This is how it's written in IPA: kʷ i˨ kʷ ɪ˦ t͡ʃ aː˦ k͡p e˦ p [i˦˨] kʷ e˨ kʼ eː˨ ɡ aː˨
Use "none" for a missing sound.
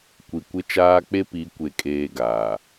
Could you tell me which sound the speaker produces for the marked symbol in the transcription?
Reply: i˨˦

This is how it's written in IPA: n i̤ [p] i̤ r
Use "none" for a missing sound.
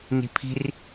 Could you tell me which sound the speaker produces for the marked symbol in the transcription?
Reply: pʰ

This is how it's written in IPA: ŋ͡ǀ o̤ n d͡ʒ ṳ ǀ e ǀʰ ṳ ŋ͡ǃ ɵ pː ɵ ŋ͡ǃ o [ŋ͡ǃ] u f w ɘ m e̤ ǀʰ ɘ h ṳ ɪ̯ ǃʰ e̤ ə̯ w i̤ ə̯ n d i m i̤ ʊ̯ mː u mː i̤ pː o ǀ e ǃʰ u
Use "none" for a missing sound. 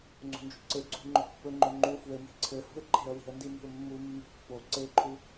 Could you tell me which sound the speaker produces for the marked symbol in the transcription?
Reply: ŋ͡ǃ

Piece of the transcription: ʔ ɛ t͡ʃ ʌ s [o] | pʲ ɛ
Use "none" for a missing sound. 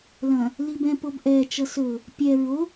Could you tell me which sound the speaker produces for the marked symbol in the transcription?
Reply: ɵ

